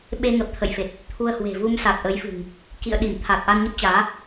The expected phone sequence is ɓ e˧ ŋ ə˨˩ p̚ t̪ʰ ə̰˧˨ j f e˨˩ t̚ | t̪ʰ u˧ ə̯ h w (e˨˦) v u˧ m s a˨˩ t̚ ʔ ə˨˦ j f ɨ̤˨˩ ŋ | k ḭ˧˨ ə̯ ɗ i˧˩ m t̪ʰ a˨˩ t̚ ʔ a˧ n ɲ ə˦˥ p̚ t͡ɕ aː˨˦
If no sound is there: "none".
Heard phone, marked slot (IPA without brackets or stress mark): e̤˨˩